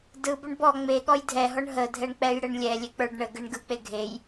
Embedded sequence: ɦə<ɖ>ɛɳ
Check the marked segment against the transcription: incorrect: dʱ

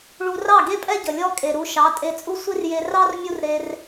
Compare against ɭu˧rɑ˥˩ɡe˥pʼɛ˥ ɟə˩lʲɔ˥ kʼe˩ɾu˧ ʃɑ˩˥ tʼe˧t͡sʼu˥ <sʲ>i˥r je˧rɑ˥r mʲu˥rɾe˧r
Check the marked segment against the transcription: incorrect: sʷ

